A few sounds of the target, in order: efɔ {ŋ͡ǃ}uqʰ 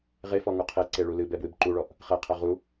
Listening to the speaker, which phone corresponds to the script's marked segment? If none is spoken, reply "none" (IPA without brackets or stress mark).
ŋ